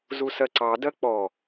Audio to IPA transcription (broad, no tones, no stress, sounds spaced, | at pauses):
z u s ɜ ǀ ɑ d ɜ k͡p ɔ